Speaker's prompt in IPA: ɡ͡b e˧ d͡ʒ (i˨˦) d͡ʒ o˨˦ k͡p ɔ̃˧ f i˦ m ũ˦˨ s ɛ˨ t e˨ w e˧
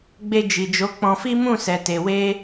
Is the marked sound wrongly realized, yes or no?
yes